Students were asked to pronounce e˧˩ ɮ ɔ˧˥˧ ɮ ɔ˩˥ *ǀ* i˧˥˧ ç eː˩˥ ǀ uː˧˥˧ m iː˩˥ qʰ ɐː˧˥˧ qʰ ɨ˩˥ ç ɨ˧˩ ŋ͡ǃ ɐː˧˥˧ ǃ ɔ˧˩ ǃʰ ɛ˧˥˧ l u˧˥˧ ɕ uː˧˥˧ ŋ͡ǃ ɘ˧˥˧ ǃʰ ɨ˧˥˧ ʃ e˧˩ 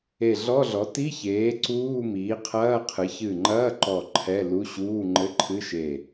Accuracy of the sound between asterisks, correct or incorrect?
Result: incorrect